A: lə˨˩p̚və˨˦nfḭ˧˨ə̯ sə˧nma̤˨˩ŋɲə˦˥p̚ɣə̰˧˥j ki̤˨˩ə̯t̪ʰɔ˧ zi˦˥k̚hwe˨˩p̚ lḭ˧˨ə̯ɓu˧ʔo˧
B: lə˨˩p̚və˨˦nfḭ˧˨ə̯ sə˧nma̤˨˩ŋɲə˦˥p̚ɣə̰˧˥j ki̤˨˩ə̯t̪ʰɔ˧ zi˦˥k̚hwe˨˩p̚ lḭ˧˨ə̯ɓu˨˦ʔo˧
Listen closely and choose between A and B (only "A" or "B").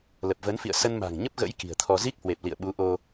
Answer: B